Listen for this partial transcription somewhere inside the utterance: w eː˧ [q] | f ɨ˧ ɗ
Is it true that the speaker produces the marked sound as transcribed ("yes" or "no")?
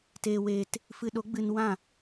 no